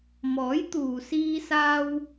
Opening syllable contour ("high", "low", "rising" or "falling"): rising